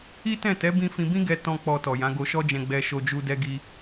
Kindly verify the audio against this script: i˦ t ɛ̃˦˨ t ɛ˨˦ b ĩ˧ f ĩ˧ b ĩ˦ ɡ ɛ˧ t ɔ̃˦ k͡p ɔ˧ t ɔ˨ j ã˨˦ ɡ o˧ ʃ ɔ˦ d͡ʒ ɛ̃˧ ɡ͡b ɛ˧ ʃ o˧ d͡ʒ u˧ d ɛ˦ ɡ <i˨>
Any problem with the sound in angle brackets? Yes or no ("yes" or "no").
yes